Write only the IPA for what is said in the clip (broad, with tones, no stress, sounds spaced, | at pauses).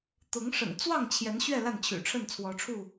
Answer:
t̪ ʊ˨˦ ŋ ʂ ə̰˨˩ n t͡s w ɑ˥˨ ŋ t͡ɕʰ j ɛ˨˦ n ɕ ɥ ɛ˥˨ l a˥˨ n t͡ɕʰ y̰˨˩ ʈ͡ʂʰ ə˥˨ n t͡sʰ w ɔ˨˦ ʈ͡ʂʰ u˥˨